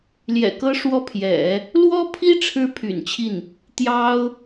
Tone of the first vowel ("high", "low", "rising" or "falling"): low